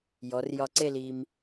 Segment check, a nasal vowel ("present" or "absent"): absent